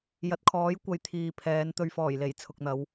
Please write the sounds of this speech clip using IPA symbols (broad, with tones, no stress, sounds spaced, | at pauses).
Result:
j ɐ˨˥ t̚ kʰ ɔː˨˥ j kʷ ɐ˧ j t̪ʰ iː˨ pʰ ɛː˨˧ n t̪ ɵ˨ ɥ f ɔː˨˩ j l e˨˩ j t͡sʰ ʊ˨ k̚ n̪ ɐ˨˧ w